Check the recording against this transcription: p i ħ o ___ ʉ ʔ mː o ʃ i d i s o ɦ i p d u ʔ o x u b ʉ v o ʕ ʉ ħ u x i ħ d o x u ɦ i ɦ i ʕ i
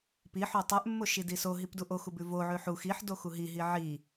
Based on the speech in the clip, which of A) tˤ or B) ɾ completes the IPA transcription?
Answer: A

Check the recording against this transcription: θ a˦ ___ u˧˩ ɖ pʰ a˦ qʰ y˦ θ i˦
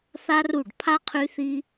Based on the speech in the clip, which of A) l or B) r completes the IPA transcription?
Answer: B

